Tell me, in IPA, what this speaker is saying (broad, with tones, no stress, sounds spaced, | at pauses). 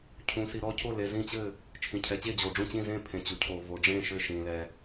cʰ ũ˩ s i˩ ɾ ɔ˥˩ cʰ o˥˩ l e˩ z ĩ˥˩ t͡ɕ ɘ˥˩ | t͡ʃʰ ĩ˩ cʰ ɛ˩ t͡ɕ e˥˩ d͡ʑ oː˩ ɖ͡ʐ ũ˥˩ t͡ɕ ĩ˥˩ z ẽ˥˩ pʰ ẽ˩ t͡ɕ u˩ cʰ oː˩ v o˩ ɖ͡ʐ ẽː˥˩ ʃ ɘ˥˩ ʃ ĩː˩ l ɛ˩